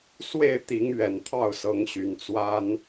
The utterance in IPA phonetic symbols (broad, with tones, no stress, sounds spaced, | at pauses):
s w e˥˨ ɪ̯ t̪ i˨˦ ŋ ɥ ɛ˨˩ n t̪ʰ ɑ˥˨ ʊ̯ s ɤ˨˦ ŋ ɕ y˨˦ n t͡s w a˦ n